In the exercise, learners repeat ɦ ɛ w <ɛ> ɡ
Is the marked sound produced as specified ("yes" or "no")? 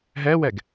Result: yes